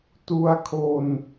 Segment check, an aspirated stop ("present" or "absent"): present